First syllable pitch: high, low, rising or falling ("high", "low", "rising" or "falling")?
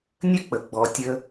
high